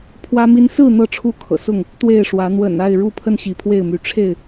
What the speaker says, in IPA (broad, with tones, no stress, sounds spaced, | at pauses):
pʰ w ä˦ m i˦ n s ɹ̩˥˨ n̪ ɤ˥˨ ʈ͡ʂʰ u˥˨ kʰ ɤ̰˨˩ s ʊ˥˨ ŋ | t̪ w e˥˨ ɪ̯ ʂ w ä˨˦ n̪ w ə̰˨˩ n a˥˨ ɪ̯ ɻ u˥˨ pʰ ə˥˨ n ɕ i˨˦ pʰ w e˥˨ ɪ̯ m y˨˦ ʈ͡ʂʰ e˥˨ ɪ̯